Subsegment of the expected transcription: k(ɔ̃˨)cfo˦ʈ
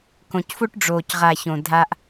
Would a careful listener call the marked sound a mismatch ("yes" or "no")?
yes